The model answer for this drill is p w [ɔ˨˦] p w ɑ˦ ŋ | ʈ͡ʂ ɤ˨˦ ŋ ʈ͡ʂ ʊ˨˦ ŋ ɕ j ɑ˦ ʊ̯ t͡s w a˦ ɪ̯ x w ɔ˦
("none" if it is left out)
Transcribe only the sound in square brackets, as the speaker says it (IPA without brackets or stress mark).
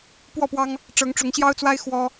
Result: ɔ˥˨